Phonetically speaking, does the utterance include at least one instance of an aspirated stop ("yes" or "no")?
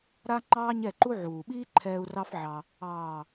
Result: yes